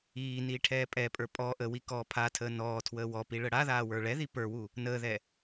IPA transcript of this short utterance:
iː niːʈʰɛːpʼɛpʼə˞ pʼɔ ʔəwi kɔːpʰatʰəː nɔː tʰwəːwɔpi ɭəɽaðaː wə˞ɭɛði pə˞wu | nəːðɛ

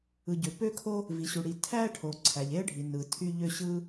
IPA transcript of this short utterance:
ɯ˩ɟø˩ pø˥kʰo˥ | vi˩ɕu˩ɽi˩ tʰæ˥ʈʰo˩ ǀʰæ˩ʎe˥ə̯ɖʱi˩ nɯ˩tʰy˥ʎø˥ ɕɯ˥

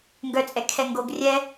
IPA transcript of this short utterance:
ŋɡœt͡sʼɛ kʰɛŋɡoɡ rʲɛ

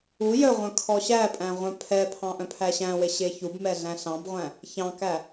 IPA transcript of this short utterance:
u jœʁʷœ̃ kʰɔɕæpʼæ̃ ʁʷœ̃pʰɛpʰɑ̃ ʔœ̃pʰæɕæ̃we ɕeçubmɛ ɮæ̃ɬɑ̃bʁʷæ̃ | çɑ̃kæ

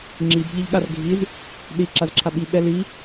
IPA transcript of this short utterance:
ŋ͡ǁib ʎiʎɠarɡʱiz | ɗi ǁazǁʰaɓi ɓɛli

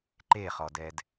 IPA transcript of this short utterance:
ǃeχɔdɛd

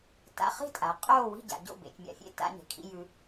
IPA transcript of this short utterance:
ta̰˧ χi̤˥˨tʼa˩˧ qʼoː˥˨ wi̤˥˨ɟa̰˩˧ ɟo̰˥˨ bḛ˩˧t͡ʃmʲa̰˩˧ fʲḛ˥˨ ta̰˧ɲe̤˩˧kʰḭ˧ jʉ˧

